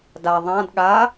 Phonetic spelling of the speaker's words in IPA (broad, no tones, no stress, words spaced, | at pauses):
da ðˤãd ɠa